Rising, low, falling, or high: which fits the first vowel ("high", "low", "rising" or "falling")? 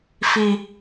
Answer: high